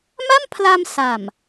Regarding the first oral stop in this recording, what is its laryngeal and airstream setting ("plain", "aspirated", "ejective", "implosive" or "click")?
aspirated